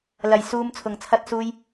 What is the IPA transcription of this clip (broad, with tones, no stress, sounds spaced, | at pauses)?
l ɐ˨ j s uː˧ m t͡sʰ ʊ˨ ŋ t͡sʰ ɐ˧ t̚ s uː˧ j